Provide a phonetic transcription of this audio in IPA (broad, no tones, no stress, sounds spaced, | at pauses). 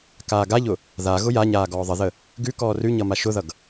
k aː ɡ a ʎ ʊ | ð a ɣ ʊ j a ɲ aː ɡ ɔː ðˤ ə ð ə | ɡ ʉ k ɔː r ʉ ɲ ʌ m a ʃ ʊ ð ʌ ɡ